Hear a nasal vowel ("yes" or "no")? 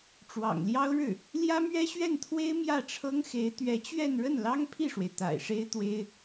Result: no